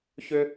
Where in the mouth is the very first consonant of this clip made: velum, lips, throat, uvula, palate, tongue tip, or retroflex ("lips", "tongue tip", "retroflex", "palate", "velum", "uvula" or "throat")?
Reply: palate